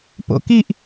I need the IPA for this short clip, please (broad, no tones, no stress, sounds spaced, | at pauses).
p o̰ k i ʔ